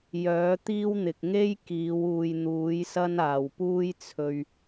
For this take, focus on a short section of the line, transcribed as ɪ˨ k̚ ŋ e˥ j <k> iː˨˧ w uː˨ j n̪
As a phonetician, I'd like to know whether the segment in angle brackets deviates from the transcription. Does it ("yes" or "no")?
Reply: no